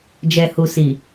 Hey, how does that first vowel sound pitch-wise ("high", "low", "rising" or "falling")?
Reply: low